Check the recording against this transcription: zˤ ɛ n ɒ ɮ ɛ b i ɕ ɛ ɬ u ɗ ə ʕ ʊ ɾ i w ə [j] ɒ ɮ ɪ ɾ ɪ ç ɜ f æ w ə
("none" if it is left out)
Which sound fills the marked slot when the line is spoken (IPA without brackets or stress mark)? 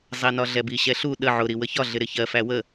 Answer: ç